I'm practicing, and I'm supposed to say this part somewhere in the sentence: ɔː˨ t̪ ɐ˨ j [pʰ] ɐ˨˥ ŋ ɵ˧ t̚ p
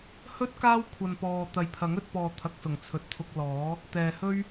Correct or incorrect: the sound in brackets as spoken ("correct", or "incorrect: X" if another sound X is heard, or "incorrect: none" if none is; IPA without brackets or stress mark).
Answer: correct